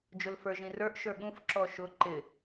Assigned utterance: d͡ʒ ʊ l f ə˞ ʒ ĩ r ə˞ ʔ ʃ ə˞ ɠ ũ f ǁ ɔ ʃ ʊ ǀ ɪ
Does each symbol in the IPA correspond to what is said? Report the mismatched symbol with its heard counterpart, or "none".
ǀ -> ǃ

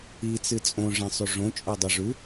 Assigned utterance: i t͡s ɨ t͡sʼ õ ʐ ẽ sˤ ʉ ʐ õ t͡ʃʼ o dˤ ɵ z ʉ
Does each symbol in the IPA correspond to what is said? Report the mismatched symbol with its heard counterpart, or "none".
z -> ʐ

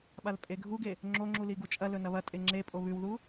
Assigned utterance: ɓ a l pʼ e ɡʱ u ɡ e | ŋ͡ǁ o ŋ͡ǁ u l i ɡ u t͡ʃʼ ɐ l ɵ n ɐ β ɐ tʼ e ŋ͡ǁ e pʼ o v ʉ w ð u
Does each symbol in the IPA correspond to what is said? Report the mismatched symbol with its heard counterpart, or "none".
v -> β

